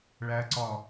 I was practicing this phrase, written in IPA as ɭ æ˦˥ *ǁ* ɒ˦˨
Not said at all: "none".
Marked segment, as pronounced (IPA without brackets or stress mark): ǀ